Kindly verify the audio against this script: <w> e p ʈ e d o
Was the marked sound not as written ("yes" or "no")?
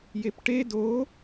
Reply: yes